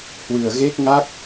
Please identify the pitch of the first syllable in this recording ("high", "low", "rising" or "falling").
low